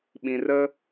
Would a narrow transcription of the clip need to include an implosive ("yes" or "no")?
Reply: yes